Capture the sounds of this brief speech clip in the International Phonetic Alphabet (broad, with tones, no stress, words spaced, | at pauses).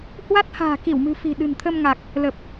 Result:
hwa˦˥t̚ha̤ː˨˩ki˧˩wmɨ̤˨˩ fi̤˨˩ɗɨ̤˨˩nt̪ʰə˧mŋa˨˩k̚ | lə˨˩p̚